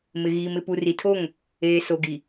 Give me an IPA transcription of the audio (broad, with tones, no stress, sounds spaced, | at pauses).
m ɪ˨ ɣ iː˨ m ɪ˨ p u˨ r i˨ tʰ o˦˨ ŋ | eː˨ s o˨ ɡ i˨